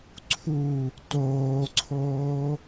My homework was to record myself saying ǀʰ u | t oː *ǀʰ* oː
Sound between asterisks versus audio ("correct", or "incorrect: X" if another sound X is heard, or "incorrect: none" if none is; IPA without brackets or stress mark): correct